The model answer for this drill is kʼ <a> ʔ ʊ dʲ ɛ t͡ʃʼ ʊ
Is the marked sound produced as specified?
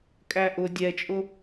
no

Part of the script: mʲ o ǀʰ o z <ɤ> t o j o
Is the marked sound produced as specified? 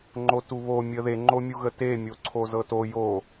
yes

